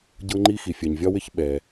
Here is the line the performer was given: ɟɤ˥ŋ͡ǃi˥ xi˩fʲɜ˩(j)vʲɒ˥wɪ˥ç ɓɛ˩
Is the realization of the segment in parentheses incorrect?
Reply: yes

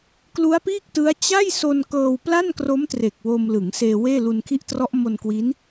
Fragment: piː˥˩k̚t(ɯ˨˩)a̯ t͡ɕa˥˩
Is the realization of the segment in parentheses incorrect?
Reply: yes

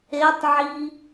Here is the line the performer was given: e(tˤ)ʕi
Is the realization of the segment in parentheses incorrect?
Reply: no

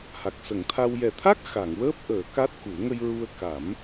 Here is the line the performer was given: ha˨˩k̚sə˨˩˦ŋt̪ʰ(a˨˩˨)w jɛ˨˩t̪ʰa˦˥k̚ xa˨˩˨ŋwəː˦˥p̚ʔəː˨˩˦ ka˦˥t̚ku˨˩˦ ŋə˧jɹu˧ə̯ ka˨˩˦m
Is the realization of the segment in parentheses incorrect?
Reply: yes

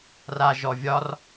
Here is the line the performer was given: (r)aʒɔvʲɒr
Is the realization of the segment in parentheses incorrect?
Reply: no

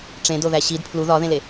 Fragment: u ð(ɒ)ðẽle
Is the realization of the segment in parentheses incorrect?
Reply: no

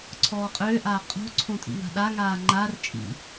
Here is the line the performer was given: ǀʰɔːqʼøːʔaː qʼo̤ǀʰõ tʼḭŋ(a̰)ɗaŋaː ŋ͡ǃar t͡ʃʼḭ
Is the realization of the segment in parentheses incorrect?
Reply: yes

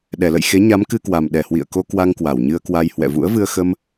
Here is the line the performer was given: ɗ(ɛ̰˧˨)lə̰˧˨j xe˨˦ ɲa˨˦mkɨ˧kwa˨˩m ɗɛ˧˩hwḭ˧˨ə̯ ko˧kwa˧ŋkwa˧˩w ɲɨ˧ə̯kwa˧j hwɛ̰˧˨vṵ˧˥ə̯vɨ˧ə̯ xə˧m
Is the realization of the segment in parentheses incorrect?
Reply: yes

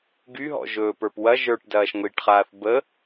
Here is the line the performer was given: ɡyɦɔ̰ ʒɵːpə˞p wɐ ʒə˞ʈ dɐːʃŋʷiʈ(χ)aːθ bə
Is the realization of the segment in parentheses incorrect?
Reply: no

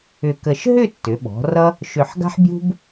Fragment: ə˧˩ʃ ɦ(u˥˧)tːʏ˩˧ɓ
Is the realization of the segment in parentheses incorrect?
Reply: yes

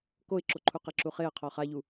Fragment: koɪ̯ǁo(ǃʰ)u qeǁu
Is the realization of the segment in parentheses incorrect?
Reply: no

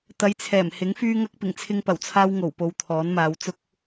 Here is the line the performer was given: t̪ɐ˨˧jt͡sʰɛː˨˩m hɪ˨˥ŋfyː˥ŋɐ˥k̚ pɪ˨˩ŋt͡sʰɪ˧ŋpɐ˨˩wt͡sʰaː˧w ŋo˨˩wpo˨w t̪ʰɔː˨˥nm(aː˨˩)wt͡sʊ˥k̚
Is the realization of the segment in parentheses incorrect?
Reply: yes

